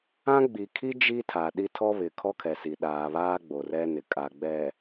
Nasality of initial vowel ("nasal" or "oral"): nasal